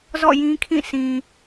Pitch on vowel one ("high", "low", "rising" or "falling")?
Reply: falling